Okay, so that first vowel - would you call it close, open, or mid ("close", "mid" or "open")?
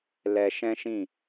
mid